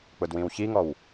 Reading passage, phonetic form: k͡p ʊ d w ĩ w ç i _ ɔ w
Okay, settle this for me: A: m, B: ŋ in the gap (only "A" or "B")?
B